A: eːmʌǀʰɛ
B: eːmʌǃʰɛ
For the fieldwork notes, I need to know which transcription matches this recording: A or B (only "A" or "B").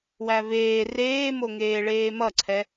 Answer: A